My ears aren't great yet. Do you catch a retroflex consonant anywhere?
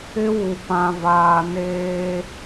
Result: no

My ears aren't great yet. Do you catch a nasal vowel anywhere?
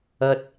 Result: no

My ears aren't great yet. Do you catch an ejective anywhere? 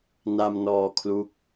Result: no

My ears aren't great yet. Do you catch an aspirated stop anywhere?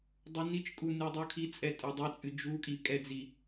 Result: yes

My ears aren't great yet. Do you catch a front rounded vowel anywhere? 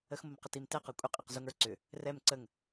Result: yes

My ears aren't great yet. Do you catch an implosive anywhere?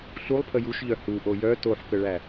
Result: no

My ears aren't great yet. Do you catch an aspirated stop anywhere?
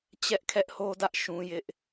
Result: yes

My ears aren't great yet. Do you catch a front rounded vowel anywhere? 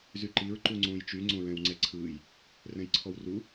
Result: yes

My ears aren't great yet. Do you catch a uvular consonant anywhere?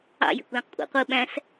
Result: yes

